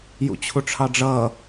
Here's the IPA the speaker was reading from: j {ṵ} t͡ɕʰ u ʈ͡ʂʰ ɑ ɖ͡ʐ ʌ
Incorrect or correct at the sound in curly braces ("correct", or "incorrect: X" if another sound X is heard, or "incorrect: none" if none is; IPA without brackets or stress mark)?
correct